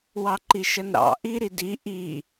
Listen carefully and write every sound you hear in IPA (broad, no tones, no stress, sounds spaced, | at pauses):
w ɑ ǃ i ʃ ə n ɾ ɑ̰ ʔ i ɾ i d i ʔ i